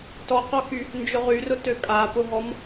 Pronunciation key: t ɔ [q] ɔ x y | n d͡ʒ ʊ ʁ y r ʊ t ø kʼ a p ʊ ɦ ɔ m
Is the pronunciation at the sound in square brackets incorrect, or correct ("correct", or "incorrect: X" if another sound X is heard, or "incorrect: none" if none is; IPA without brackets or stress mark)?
correct